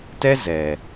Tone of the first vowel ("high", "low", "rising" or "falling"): high